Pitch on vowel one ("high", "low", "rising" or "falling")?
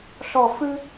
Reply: falling